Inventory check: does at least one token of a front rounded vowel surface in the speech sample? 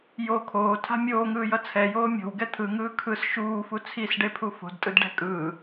no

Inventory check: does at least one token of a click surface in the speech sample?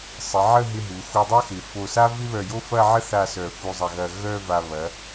no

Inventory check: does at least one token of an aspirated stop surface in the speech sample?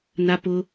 no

